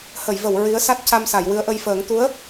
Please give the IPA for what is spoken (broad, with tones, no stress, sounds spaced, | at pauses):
h ə˨˩˨ j v ə˨˩˨ w ɹ i˧˥ ə̯ s a˦˥ t̚ c a˧ m s a˨˩˨ j w ɨ˧˥ ə̯ ʔ ə˧ j f əː˨˩˦ ŋ t̪ u˧˥ ə̯